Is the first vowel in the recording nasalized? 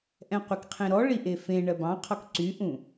yes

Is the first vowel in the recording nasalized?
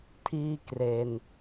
no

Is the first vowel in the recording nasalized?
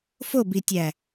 no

